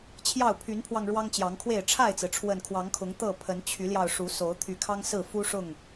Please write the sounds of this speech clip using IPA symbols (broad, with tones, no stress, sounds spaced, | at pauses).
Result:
t͡ɕʰ j ɑ˥˨ ʊ̯ pʰ y˨˦ n pʰ w ɑ˧ ŋ ɻ w ɑ˦ ŋ t͡ɕ j ɑ˨˦ ŋ kʰ w e˥˨ ɪ̯ ʈ͡ʂʰ a˥˨ ɪ̯ t͡s ɹ̩˩ ʈ͡ʂʰ w ə˨˩ n kʰ w ɑ˨˦ ŋ kʰ ʊ˨˦ ŋ t̪ ɤ˥˨ pʰ ə˨˦ n t͡ɕʰ y˨˦ l j ɑ˧ ʊ̯ ʂ u˨˦ s o˨˦ ʊ̯ t̪ʰ y˨˦ kʰ ɑ˦ ŋ s ɹ̩˥˨ f u˦ ʂ ʊ˥˨ ŋ